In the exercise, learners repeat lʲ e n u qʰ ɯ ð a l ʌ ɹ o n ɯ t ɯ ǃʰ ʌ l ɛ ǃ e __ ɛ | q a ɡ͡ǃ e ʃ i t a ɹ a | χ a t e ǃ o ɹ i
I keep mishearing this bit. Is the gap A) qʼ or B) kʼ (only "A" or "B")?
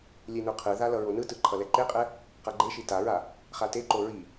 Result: A